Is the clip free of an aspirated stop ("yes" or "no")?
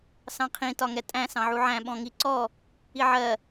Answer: no